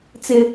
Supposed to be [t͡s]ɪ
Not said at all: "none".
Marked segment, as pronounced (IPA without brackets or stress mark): t͡s